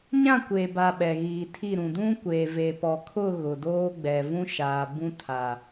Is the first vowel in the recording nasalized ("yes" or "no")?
yes